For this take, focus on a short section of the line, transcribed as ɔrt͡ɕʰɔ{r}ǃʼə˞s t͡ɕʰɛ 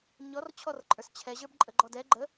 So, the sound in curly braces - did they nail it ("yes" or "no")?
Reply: yes